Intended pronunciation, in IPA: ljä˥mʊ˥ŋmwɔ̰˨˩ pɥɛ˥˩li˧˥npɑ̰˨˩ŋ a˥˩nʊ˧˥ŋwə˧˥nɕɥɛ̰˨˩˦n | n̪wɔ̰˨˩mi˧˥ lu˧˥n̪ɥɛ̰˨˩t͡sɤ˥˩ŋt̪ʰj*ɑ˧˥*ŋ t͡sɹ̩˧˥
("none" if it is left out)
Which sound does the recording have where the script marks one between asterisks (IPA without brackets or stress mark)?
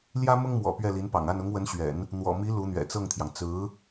ɑ˩